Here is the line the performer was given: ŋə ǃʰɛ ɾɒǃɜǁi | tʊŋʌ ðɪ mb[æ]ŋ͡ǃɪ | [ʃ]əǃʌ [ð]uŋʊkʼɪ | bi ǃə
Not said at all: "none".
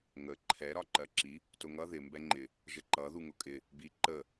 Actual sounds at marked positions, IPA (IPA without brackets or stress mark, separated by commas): ɛ, ʒ, ð